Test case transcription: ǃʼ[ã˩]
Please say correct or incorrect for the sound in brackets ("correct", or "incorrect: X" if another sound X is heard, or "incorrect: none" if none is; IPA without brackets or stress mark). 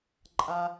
incorrect: a˩